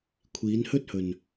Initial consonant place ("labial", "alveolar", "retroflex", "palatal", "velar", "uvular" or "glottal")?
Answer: velar